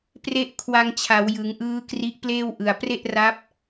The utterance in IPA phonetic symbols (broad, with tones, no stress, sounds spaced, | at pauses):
p r e˦˥ ʔ kʰ w a˧ ŋ t͡ɕʰ a˩˦ w j ɯ˩˦ ŋ ʔ ɯː˦˥ k r i˦˥ ʔ p l eː˥˩ w ʔ ɯ˨˩ a̯ p r e˥˩ ʔ r a˦˥ p̚